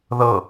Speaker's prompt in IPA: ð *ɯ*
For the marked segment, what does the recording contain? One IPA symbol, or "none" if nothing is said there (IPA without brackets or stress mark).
ɤ